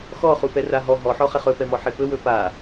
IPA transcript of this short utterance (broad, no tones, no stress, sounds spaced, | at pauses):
x ɔ χ u p ɛ r a ɦ ɔ ɦ ɔ ħ ɔ χ ɛ χ ɵ p ɛ m ɔ ħ e p ɵ w ɵ p a